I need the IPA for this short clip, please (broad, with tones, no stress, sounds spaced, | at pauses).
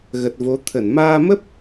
ɣ ə˨˩ t̚ v o˨˦ t̪ʰ ə˧˩ n m aː˧ m ə˦˥ p̚